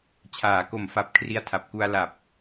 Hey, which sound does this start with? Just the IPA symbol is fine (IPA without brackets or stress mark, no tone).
t͡ɕʰ